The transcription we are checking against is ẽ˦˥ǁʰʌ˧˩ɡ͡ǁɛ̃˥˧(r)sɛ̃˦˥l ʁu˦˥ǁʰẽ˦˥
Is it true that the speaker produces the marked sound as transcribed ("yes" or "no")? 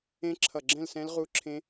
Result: no